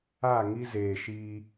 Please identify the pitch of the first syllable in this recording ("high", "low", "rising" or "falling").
falling